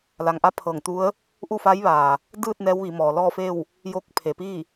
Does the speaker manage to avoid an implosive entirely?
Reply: yes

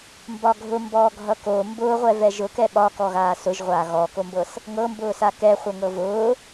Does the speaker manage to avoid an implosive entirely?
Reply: no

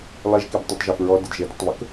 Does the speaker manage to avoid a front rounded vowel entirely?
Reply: yes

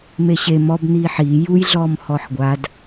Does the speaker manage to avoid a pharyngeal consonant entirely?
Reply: no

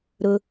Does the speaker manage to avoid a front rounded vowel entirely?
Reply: yes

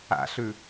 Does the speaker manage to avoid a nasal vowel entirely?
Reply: yes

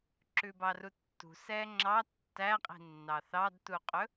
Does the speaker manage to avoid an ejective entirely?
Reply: no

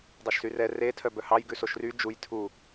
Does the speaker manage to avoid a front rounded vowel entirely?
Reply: no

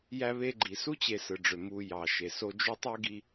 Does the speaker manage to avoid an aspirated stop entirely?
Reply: yes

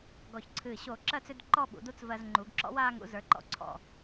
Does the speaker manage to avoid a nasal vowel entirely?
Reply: yes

